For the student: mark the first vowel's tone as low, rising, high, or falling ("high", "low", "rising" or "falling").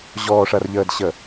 low